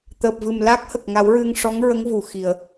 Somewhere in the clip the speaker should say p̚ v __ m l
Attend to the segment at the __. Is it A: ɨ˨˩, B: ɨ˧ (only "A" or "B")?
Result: A